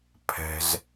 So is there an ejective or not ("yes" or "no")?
no